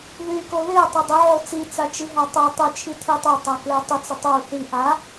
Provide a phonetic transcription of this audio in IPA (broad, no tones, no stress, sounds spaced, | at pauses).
ð y k o ð e tˤ ʏ dˤ ʏ ʕ o t͡s i t͡s a t͡ʃ i ɦ a tˤ o tˤ ʏ t͡ʃʰ i tʰ y tˤ o tˤ a k l e tˤ ʏ t͡s ʏ tˤ o θ i ʔ a